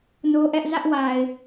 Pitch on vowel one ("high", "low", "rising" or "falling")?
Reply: high